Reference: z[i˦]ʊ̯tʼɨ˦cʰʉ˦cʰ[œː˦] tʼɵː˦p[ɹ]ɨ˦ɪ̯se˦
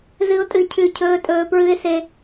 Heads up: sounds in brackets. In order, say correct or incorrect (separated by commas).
incorrect, incorrect, correct